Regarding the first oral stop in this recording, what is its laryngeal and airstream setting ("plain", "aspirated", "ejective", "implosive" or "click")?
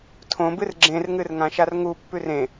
aspirated